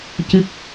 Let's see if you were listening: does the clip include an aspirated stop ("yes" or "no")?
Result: no